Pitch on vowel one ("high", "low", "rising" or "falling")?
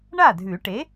falling